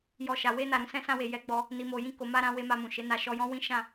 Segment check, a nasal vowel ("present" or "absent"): present